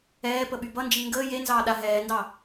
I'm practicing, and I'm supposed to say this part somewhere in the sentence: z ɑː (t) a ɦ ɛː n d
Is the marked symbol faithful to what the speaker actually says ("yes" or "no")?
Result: no